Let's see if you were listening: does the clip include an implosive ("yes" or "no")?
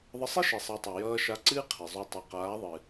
no